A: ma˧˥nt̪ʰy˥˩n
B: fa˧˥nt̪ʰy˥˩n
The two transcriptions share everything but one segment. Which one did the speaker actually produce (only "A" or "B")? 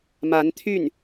A